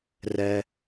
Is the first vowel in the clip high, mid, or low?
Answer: mid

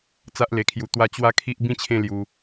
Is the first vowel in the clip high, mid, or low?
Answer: low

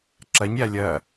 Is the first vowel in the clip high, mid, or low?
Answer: low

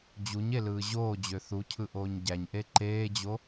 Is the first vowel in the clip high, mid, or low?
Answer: high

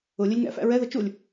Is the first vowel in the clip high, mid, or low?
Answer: high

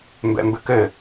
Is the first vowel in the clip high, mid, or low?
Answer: mid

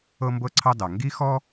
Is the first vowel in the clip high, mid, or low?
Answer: mid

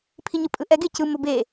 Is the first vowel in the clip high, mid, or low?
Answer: high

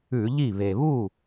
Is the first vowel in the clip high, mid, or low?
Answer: high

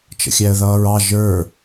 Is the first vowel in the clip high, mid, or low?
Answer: mid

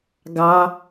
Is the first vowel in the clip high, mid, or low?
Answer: low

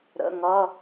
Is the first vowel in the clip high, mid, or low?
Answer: mid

